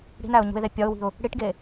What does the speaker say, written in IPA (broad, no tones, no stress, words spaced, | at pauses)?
ɽi̤næʊ̯ɲṳɪ̯ðe pʲɒʊ̯wi̤ʊ̯ | ɽiʈɡe